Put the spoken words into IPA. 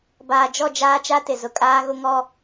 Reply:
b aː˨ d͡ʒ ɔ˦˨ d͡ʒ aː˦ t͡ʃ a˦ t ɪ˨ z ʊ˨ kʼ aː˦ ɣ ʊ˦ ŋ ɔ˦

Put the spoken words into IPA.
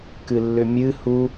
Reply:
k ɨ lː ʏ mʲ ɨ h u

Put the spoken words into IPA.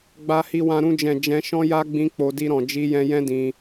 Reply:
ɡ͡b a˧ h i˧ w ã˧ ɾ ũ˧ d͡ʒ ɛ̃˨ d͡ʒ ɛ̃˧ ʃ ɔ̃˦ j a˦ ɡ͡b ĩ˦ k͡p o˧ d i˧ ɾ ɔ̃˨ d͡ʒ i˧ j ɛ̃˧ j ɛ̃˦ d ĩ˧

